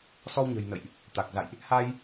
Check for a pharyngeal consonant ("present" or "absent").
absent